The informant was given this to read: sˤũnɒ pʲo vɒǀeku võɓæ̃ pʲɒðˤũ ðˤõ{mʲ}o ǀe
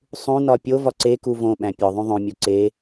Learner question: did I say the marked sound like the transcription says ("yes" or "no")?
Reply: yes